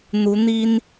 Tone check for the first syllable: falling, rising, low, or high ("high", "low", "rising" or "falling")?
rising